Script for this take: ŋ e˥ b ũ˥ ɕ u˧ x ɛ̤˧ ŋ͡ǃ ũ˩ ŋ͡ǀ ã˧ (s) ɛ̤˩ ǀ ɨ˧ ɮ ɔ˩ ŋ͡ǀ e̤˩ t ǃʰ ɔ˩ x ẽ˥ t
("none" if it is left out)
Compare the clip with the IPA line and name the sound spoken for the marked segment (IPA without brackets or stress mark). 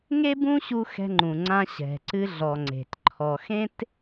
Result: ɕ